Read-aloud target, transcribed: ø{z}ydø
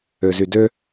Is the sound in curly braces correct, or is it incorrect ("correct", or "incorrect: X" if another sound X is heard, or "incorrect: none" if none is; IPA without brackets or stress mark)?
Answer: correct